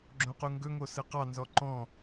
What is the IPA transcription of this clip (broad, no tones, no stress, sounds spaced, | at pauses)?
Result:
ɡ͡ǁ õ q u ŋ ɡ ɵ ŋ o s ɯ q ɑ n z ɔ ǃ ɔ̃